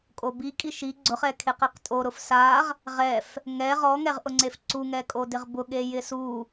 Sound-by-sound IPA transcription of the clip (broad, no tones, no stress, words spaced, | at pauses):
kʼobikʼi ʃi ɡ͡ǀʊχɛkʰeqeq tʼoɾʊf saʁ | ʁɛf | ŋɛ ʁɔŋɛʁʔʊŋ͡ǀef ǀuŋɛ kʼodɪʁbʊ ɠejɪsu